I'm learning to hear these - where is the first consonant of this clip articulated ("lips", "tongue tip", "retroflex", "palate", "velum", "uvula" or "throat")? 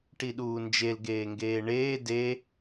retroflex